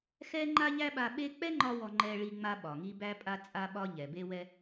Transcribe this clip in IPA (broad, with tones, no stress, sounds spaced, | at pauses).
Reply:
x ɛ˥ ŋ͡ǃ a˥ ʎ æ˥ ɓ a˧ ɓ e˥ k͡p ɛ˥ ŋ͡ǃ ɒ˧ w ɔ˧ ŋ͡ǃ ɛ˧ ɭ i˧ ŋ͡m a˧ ɓ ɒ˩ ŋ i˧ b æ˧ pʼ a˧ t͡sʼ a˧ ɓ ɒ˧ ʎ ɛ˩ b e˧ w ɛ˧